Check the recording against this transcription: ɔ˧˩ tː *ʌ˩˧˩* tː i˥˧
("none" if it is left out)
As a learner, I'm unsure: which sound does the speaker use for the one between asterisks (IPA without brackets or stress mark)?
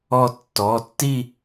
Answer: ɔ˩˧˩